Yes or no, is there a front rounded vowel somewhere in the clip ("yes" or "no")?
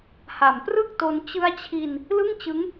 no